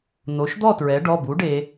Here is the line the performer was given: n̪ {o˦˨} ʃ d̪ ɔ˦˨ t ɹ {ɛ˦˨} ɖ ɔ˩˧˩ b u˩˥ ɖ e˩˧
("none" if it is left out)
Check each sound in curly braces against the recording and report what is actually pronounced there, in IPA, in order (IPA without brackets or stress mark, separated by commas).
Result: o˩˧, ɛ˩˧